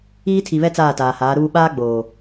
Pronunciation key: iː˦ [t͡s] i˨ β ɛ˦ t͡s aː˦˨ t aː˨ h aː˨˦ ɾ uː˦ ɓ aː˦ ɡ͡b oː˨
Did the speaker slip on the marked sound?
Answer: yes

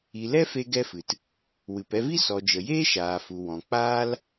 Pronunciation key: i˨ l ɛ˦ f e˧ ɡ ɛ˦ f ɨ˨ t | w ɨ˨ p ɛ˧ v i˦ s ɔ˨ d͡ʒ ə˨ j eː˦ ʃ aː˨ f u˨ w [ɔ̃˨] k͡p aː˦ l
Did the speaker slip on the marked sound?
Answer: no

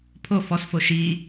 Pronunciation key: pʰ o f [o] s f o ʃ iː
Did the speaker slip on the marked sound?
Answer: yes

